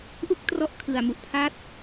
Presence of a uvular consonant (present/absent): absent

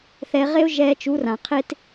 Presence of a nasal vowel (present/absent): present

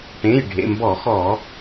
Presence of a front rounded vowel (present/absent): absent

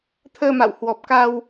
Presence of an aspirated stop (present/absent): present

